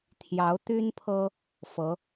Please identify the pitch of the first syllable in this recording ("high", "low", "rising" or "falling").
rising